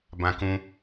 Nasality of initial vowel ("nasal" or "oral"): nasal